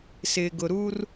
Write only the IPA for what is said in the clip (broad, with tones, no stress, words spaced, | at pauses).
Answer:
sɪ˨ɡʊ˨ɾu˦r